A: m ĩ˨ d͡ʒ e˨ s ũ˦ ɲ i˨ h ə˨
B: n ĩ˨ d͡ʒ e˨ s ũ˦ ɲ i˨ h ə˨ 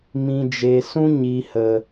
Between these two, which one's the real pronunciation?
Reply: A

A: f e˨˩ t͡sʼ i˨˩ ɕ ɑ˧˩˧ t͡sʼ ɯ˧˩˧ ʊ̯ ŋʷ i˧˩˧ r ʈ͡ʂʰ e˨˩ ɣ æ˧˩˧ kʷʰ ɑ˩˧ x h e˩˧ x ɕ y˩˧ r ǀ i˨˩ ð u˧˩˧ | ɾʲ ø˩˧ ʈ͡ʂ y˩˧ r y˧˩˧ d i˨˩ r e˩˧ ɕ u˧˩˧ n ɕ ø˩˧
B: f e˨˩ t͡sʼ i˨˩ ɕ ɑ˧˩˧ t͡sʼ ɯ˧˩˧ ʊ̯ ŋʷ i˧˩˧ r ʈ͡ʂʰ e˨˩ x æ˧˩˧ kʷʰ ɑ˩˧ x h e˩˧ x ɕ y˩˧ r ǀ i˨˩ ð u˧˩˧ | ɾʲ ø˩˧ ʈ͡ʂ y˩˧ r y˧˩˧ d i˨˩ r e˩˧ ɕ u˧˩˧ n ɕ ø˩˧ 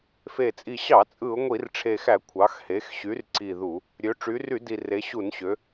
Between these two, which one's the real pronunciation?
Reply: B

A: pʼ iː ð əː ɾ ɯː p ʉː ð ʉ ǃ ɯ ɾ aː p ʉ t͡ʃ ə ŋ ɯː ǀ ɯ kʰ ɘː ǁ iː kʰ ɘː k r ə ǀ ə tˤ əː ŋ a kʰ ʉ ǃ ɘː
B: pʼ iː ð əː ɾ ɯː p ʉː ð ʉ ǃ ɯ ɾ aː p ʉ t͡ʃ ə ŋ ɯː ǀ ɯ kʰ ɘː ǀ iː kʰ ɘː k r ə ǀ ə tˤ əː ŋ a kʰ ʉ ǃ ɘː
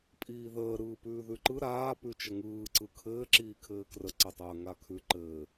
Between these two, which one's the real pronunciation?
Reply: A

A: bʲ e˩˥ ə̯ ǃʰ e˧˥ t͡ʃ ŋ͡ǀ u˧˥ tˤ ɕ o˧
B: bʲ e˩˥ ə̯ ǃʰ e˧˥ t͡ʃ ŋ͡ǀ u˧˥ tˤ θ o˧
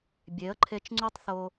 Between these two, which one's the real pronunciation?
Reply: B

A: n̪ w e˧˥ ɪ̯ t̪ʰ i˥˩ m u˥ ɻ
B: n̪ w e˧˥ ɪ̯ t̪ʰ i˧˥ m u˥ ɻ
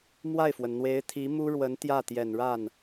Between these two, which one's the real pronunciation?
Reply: B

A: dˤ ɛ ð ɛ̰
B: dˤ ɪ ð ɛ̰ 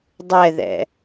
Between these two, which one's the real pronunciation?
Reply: A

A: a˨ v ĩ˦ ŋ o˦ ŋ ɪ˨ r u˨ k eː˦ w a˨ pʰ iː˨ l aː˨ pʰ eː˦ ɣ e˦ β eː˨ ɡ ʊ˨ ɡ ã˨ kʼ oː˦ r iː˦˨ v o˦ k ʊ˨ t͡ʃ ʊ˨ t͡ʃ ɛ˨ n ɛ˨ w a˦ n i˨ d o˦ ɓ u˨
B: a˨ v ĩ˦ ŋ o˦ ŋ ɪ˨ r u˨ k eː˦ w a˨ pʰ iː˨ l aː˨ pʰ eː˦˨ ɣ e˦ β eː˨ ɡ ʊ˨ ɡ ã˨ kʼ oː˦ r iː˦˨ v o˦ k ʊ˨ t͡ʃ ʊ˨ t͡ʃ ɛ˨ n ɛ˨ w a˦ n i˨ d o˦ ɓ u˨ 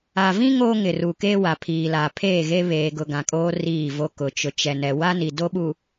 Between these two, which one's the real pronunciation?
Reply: B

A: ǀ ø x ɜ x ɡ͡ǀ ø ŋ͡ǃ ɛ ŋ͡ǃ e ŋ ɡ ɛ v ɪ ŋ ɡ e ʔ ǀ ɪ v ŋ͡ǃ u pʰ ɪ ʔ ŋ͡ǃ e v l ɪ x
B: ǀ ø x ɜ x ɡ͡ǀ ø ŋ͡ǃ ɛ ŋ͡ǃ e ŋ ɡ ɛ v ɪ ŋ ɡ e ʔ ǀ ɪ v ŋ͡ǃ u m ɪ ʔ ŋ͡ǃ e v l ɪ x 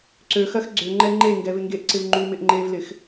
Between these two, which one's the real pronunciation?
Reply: B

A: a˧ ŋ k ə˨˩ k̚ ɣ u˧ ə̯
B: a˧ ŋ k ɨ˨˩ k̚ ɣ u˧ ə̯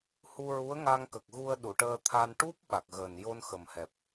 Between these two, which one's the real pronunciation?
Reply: A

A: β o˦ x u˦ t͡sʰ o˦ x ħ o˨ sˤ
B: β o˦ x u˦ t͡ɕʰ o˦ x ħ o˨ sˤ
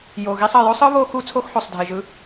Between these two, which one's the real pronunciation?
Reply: A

